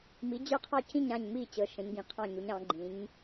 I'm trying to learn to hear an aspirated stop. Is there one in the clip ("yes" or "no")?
yes